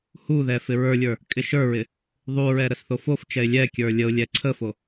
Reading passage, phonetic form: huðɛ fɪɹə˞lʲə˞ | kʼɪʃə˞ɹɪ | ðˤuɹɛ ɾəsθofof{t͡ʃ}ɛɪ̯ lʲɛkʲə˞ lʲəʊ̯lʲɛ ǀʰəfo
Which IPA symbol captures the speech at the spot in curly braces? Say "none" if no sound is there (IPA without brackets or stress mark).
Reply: t͡ʃ